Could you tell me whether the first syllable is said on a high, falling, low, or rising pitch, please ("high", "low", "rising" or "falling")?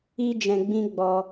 high